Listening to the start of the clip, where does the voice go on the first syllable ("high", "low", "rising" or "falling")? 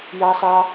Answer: high